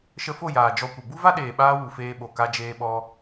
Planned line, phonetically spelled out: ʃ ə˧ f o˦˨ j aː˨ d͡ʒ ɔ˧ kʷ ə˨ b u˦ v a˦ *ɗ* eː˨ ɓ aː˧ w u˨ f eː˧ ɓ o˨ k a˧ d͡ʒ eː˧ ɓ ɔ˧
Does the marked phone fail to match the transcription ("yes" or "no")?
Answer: no